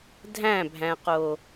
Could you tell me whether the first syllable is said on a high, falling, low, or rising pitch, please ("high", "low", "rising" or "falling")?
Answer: falling